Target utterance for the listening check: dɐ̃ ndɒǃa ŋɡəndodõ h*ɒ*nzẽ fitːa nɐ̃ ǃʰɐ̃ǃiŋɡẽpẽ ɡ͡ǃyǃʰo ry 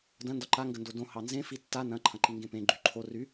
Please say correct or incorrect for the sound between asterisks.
incorrect